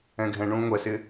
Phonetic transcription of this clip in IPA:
ɛ̃ ɡʱ ɛ̃ ɳ ũː ŋʷ ɛ s ɪ

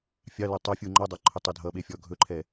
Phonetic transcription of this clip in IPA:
fʲ ɑ l ɵ tˤ ɐ fʲ u ŋ͡ǃ ɔ dˤ ɑ ǃʰ ɵ tˤ ɵ dʱ ʌ ɓ e fʲ ɔ ɡʱ ɵ ǃʰ ɛ

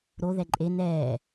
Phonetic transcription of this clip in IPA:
ɾ o ð ɛ ǃʼ e n ɛː

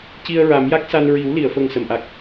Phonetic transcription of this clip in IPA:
c i˧ ə̯ ɹ a˨˩˦ m j a˦˥ k̚ s a˧ n ɹ i˨˩˦ w l i˨˩˨ ə̯ f ə˨˩ ŋ s ə˨˩˨ m ʔ a˨˩ k̚

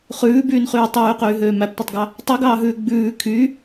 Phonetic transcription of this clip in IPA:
χ ʉː b yː n χ yː tˤ yː q yː ɦ øː m æ p tʷ ɛ tˤ ɡ ɑ | tˤ y ɡ ɑː ɦ ʉː ɡ͡b ʉː kʰ y

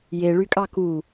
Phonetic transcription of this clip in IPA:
j e ɭ y kʼ ɑ k u

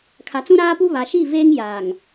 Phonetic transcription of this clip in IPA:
kʰ a˨ t͡s ũ˦ ɾ aː˦ p u˦ β a˨ ʃ i˦˨ v eː˦ ŋ j aː˨ ŋ

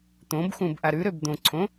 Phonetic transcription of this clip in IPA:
t̪ õ b x ũ b ʔ a ɾ ʉ ɾ ø b d̪ õ ǀʰ õ

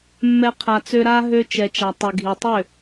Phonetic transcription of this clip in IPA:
mː ɛ˦ qʰ a˧ t͡s ø˦ ɾ a˦ ɦ ø˧ t͡ʃ ɛ˨ t͡ʃ a˨ tˤ y˨ ɡʱ i˨ tˤ ø˦˨

